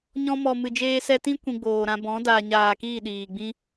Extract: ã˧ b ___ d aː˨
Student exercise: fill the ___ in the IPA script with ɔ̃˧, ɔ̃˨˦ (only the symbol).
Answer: ɔ̃˨˦